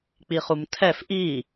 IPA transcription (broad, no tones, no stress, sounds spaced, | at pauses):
k͡p i χ u m tʰ ɛ f ʔ i